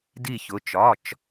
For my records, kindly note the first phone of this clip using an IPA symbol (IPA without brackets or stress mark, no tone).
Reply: d